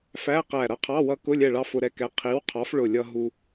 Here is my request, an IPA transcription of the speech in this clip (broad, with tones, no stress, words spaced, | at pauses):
fæ˧˥˧qæ˧˩ ɾʌ˧qʰɑ˧˥˧ wʌ˧ kʊ˧˥˧lʲɛ˧˩ɭɑ˧ fʊ˧ɾɛ˧kɛ˨˥ qʰi˨˥w qʰɑ˨˥fɭʊ˧˩lʲʌ˧ ɦu˧